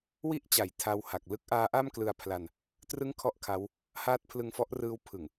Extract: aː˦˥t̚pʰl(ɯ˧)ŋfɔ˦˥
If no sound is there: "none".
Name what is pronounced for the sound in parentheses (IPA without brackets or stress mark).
ɯ˧